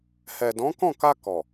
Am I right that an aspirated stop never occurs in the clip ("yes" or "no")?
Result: yes